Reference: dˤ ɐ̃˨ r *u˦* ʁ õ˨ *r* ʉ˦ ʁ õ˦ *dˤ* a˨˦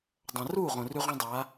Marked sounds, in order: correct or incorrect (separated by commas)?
incorrect, correct, correct